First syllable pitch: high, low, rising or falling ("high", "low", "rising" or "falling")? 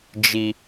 low